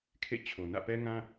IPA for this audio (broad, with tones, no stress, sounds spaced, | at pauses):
kʰ ḛ˦˨ t͡ɕʰ o˨ n ä̰˦˨ p ɛ˦ ŋ ã˦